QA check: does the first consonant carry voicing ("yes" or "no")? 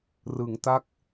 yes